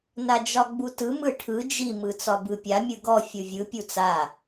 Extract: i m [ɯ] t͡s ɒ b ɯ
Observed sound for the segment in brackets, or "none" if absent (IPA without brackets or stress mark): ɯ